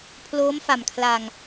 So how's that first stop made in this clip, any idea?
aspirated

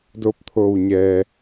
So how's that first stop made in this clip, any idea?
plain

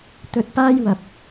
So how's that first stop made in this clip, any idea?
plain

